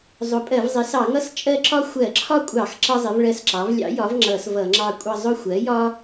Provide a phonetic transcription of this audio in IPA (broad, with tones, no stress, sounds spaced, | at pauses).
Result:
zˤ ʊ˩˥ pʼ ɜ˧˩˧ v zˤ ɪ˩˥ s ɑ˧˩˧ ŋ ʌ˦ s t͡ʃʼ ɜ˦ ǁ ɒ˦ xʷ ɜ˧˩˧ ǁʰ ɒ˦ kʷʼ ɑ˧˩˧ x ǁ ʌ˦ zˤ ɪ˩˥ v ɭ ɜ˦˨ s ǁ ɑ˩˥ v lʲ ɑ̰˩˥ j ɒ˩˥ v ŋ͡ǁ ʌ˧˩˧ s v ʌ˧˩˧ ŋ͡ǁ ɑ˦˨ kʷʼ ʌ˦˨ zˤ ʊ˦˨ xʷ ɜ˩˥ j ɒ˦